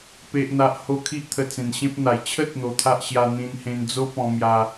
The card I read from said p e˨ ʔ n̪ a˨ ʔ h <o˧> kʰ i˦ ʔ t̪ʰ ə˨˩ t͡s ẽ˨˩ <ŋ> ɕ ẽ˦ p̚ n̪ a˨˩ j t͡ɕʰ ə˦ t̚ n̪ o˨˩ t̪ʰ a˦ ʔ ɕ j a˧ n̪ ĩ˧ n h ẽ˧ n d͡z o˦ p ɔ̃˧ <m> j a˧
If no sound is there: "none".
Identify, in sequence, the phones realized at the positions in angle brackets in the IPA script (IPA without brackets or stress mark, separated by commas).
o˧, n, m